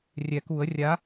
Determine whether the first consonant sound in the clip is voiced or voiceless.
voiced